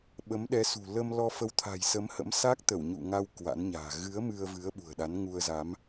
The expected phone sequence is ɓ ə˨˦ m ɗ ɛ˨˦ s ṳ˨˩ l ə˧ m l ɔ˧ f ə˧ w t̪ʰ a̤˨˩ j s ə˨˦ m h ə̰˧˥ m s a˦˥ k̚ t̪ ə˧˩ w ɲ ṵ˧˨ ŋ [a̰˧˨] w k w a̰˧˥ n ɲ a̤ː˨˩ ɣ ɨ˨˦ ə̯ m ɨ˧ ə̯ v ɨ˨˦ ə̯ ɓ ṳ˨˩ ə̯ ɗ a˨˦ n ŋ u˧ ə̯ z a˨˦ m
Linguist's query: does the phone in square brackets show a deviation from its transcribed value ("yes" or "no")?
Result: yes